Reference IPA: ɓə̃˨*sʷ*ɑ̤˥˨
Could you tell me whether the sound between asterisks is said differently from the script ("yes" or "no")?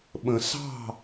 yes